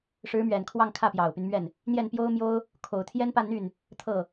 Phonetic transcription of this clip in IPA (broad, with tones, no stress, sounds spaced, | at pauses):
ʂ ɻ̩˧˥ m ɥ ɛ˨˩ n kʰ w ɑ˥˧ ŋ kʰ ä˥˩ p j ɑ˨˩ ʊ̯ p y˦ n m ɥ ɛ˥˩ n | n̪ j ɛ˥˩ n p j o˥ ʊ̯ m j o˥ ʊ̯ | kʰ o˨˩ ʊ̯ t̪ʰ j ɛ˥ n p a˥˧ n n̪ y˥˩ n | t̪ʰ ɤ˥˩